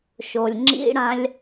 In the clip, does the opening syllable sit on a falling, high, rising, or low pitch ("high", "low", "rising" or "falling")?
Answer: low